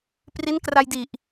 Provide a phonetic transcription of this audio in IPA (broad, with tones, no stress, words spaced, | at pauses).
pri˦˥nkra˧jdi˨˩ʔ